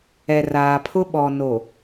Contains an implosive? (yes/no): yes